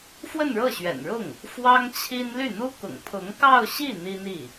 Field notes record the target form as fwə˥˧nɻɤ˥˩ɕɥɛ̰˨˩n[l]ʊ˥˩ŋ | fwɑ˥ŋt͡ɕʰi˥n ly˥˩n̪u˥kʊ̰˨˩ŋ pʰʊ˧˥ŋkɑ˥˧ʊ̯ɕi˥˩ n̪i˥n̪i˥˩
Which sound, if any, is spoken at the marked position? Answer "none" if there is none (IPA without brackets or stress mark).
ɻ